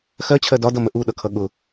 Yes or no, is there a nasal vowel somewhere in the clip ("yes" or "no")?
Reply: no